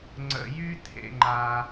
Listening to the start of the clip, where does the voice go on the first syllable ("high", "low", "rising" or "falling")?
low